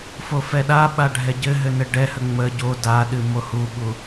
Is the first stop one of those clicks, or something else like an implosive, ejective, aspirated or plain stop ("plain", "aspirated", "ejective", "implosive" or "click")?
implosive